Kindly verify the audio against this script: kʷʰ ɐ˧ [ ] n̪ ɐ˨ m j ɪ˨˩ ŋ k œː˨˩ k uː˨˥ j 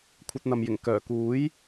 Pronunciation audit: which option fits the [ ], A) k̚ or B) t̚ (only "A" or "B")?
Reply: B